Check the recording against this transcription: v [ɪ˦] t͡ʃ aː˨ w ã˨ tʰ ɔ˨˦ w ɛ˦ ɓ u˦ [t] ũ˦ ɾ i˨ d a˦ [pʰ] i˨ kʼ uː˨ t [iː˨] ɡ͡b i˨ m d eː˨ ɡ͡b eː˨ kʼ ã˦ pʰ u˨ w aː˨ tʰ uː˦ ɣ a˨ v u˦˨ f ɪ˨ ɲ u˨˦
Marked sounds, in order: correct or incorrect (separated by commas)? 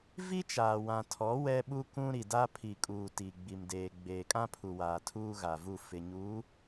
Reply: incorrect, incorrect, correct, incorrect